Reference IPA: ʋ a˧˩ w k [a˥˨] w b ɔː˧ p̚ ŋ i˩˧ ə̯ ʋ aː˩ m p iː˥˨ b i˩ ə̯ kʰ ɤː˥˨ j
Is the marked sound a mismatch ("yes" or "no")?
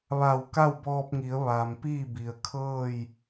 no